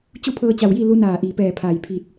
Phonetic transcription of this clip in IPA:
t͡ɕu˥˨pʰɤː˧t͡ɕa˧˩wji˥˨ lu˧˥ naː˧˩ʔi˩pɛː˧˩ pʰaː˧˩j pʰi˧˩t̚

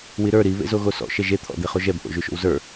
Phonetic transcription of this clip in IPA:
wiɾə˞ ɾi βḛzoɣosɔ̰ ʃɛʒe t̪ʰɔ̰d̪eχoʒɛb ʔo̰ʒʉʃo̰wzə˞

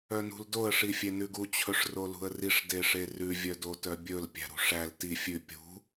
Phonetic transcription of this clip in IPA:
œnṳldoə̯ ʂifʲenʉɡu t͡ɕʰɵʂrolṳə̯riʂ deʂerʉ vʲœdotœbʲɵl pʲæ̤ɾṳʂæl ti fʲʉ pʲṳ

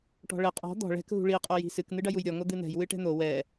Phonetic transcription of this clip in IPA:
ʈɔ̤ɭɘ qʼɔ̤ d̪ɔ̤ ɭɛ̤k ɦṳɭi qʼoji̤sɨk n̪ɨɖɐjujɾʲɔ ŋod̪ɨn̪ɛ̤j wɨʈɛ̤n̪o wɛ

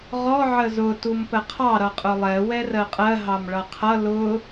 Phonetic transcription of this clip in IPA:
ʁɔ ʕəzʊ tumpəqʰɑ ɾʌqʼʊlˠɛ wɛrɜqʼɜ ɦɑmɭʌqʰʌ lʊ

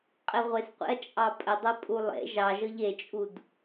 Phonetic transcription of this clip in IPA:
qʼeʁʷesqʷḛɐ̯ t͡ʃʼɑpʼə dˤʌpʼulˠḛ ʒɑʒɤʎ et͡ʃʼud

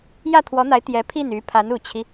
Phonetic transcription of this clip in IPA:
jä˥˩t̪ʰwɔ˧˥n̪a˧˥ɪ̯ t̪jɛ˧˥pʰi˥˩ny˧˥ pʰa˧˥nu˨˩t͡ɕʰi˦

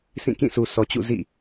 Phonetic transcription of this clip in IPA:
sĩ˦˨kĩ˦˨ sʰu˨ sɔ˨t͡ɕṵ˦˨ zḭ˦˨

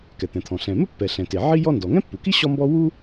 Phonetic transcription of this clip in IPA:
kɛ˩t̪ɛ̃˩t̪ʰɔ̃˩ ɬɛ̃˩mɘ˥pːɛ˩ ɬɛ̃˩te˩ʕi˥ jɔ˥ndɔ˩ ŋɛ̃˥pːu˩ki˥ ɕɔ˥mbɔ˥ wu˥

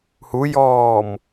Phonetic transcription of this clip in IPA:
hujɔːm

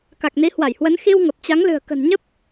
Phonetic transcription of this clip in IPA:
ka˨˩k̚ni˨˦hwa˧˩jhwə˨˦n xi˧w ŋə˨˩p̚t͡ɕa˨˦ŋlɨ̤˨˩ə̯ kə̤˨˩nɲə˦˥p̚

